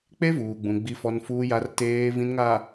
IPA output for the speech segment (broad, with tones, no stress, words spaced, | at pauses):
k͡pe˦vuː˨ɡ͡bũ˨ ɡ͡bi˨fɔ˨n fuː˨ja˨r teː˨vĩ˨nŋa˨